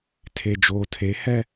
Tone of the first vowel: low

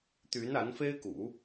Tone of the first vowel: rising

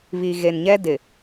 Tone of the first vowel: low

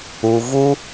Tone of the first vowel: low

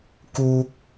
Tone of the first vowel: high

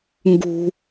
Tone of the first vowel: low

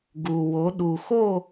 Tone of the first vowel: low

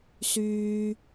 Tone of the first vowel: high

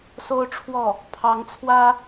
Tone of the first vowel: high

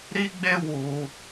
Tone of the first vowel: high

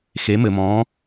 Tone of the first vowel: rising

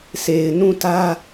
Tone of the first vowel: low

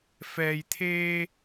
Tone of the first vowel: low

